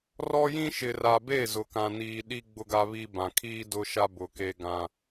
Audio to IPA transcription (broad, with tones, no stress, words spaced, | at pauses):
rɔ˦jĩ˦ ʃɪ˨ra˨be˦˨ zʊ˨ kã˨niː˨ ɗi˦ ɡ͡bʊ˦ɡa˦βi˦ bã˨kʰiː˦ dʊ˦ʃa˦ bʊ˨ke˦ɡã˦